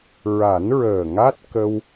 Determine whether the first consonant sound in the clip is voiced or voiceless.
voiced